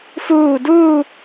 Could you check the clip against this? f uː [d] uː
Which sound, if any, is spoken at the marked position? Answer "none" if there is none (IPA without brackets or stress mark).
d